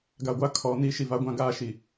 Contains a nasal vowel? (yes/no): yes